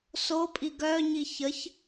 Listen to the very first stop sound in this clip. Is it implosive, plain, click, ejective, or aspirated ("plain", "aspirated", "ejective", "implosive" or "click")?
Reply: ejective